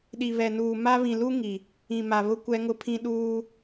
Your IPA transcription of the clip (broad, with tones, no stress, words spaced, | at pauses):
ɗi˨βɛ˨nuː˨ ma˦ βĩ˨lu˦ ŋi˨ | ĩ˨ma˨βʊ˦ kʷɛ˦ŋʊ˦pʰĩ˦ ɗuː˦